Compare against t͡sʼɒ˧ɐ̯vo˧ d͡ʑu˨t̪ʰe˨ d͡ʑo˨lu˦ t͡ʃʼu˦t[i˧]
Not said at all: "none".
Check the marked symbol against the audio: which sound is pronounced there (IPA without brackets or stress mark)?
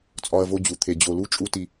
i˧